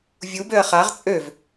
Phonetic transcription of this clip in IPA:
vʲ u b ø ɐ̯ χ a ʁ t͡sʼ ø v

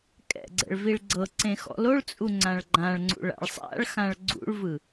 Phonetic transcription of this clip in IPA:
kʼ ɛ̰ ɡ͡ǀ ɛ̰ ɭ v i ɭ ɡ͡ǀ ɤ ǀ ẽ x ɔ̰ l o ɭ t͡sʼ u ŋ͡ǀ ã ɭ ɡ͡ǃ ã ɭ ŋ͡ǀ ṵ ɭ a̰ ɭ sˤ a̰ ɭ x ã ɭ ɡ͡ǀ ṵ ɭ v ɯ

